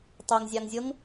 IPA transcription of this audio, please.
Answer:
tˤ e ŋ zʲ ɑ ŋ zʲ ɤ ŋ

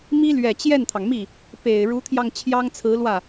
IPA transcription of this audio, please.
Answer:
m i˥ l ɥ ɛ˨˩ t͡ɕ j ɛ˥˩ n t̪ʰ ɑ˩ ŋ m i˥˩ | p e˨˩ ɪ̯ ɻ u˧˥ t̪ʰ j ɑ˧ ŋ t͡ɕʰ j ɑ˥ ŋ t͡sʰ ɹ̩˧˥ l w ä˥˩

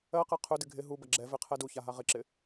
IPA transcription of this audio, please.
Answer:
ɜ q ɛ qʰ ɵ d ɪ ɡʱ ɪ ɦ u b ɐ ɡ͡ǁ ɛ v ɪ qʰ ɛ d u ç a ɦ a ʁ ɪ ǁ ɪ

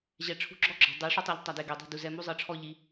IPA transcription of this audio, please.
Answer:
ʑ ɛ˨ ʈ͡ʂʰ ṳ˧ ɡ͡ǁ ɔ˦ ɡ͡ǁ ɔ̤˨ dˤ i˨˦ ʂ o˦ tˤ a˧ ʎ tˤ a˨ d e˨ ɡ e˨ dˤ i̤˦˨ d u˨ z ɛ˧ m u˦ zˤ ɤ˧ ʈ͡ʂʰ ɔ˦ ʎ i˧

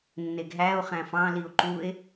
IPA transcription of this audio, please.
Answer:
nː e ɡ ɦ æ o̯ χ æ̃ f ɑ̃ l i o̯ ǃ u e̯

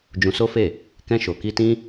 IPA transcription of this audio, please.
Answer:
d͡ʒ ũ˧ s o˦ f e˦˨ | k ɛ̃˧ ʃ o˨ k i˧ t ĩ˦

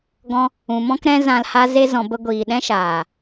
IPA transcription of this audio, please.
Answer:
ɡ ɔ̃˧ | ũ˨ m ɔ̃˦ k ɾ ɛ̃˦ z ã˧ l h a˦ z e˦ z ɔ̃˧ b ə˦ ɡʷ iː˨ ɗ ɛ̃˦ ʃ aː˨

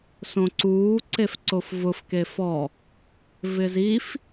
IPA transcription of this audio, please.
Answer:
s õ ǀ uː ǀ e f ǀ o f v ʊ f k e f ɔ | v ɪ z i f

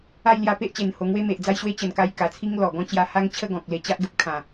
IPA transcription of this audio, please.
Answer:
a˥˧ j l j a˧ p e˦ ʔ t͡ɕ e˨˩ n h o˧ ŋ w e˦ m e˨ ʔ d͡z a˦ j ɕ w e˦ t͡ɕ ə˨˩ n k a˧ j k a˨˩ t͡sʰ i˦ ŋ l ɔ˨˩ ɡ ɔ̃˥˧ t͡ɕ j a˧ h a˦ ŋ t͡ɕʰ ə˥˧ ɡ ɔ̃˨ k̚ l e˧ t͡ɕ a˦ ʔ ɡ ə˦ p̚ kʰ ã˨˩

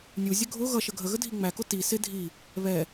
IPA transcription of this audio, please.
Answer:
nʲ u zʲ ə ɡʱ ʊ ɣ ʌ ʃ ə ɡʱ ə ɣ ə dʱ i ŋ͡m æ k ʊ t i s ɪ dʱ i | β ɛ

